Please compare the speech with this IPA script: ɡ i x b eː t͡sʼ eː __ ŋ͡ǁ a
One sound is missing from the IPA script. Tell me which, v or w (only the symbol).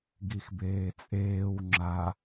w